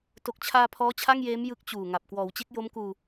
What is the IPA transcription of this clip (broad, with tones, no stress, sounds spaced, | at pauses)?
t o˨˩ k̚ t͡ɕʰ aː˧ pʰ ɔː˦˥ t͡ɕʰ a˥˩ ŋ j eː˦˥ m j ɯ˦˥ k̚ t͡ɕ uː˨˩ ŋ a˨˩ p̚ k w ɔː˩˦ w t͡ɕ e˦˥ k̚ j o˦˥ m k uː˧